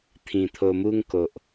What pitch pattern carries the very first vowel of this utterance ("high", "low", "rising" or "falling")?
low